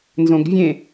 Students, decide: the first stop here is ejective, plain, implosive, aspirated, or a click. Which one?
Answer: plain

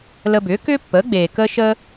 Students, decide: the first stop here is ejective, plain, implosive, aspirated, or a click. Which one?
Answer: plain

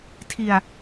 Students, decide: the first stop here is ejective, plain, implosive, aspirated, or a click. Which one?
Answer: aspirated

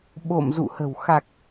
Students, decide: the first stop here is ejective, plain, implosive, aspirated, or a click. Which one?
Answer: implosive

